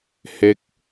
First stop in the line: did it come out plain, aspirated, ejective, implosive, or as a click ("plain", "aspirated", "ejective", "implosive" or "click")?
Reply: plain